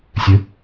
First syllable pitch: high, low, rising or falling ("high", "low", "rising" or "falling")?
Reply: rising